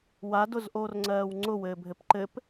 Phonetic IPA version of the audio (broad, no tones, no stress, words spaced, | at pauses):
wadʊzʔoːrŋ͡ǀɜːw ŋ͡ǀʊwɘːbʱɘp ǃɘp